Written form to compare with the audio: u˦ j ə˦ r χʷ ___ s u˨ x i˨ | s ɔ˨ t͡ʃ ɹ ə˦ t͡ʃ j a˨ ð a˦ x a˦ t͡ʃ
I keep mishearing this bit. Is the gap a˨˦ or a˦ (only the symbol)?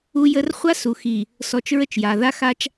a˦